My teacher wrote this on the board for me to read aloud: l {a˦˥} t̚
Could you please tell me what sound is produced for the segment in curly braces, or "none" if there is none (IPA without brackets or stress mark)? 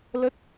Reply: ə˦˥